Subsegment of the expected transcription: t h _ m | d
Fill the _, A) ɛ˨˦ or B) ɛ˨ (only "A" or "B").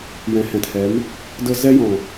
A